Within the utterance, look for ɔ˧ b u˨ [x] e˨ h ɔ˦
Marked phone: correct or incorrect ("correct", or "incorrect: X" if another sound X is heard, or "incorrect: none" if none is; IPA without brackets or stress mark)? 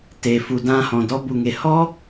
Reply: incorrect: ŋ